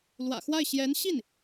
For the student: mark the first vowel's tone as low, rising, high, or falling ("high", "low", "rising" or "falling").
low